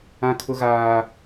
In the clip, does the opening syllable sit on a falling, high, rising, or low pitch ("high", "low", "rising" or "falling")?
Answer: high